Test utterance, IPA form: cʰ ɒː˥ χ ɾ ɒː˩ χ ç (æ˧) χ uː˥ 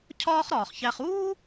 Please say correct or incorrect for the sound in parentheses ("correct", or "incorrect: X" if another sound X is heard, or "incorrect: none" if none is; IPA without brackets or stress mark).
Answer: correct